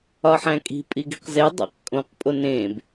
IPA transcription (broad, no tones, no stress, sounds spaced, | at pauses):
ɒ ħ æ̃ kʼ i̤ pʼ i ɡ i̤ q z e dˤ æ̰ q kʼ õ q pʼ o n ẽ b